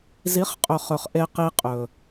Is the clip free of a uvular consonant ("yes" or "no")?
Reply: no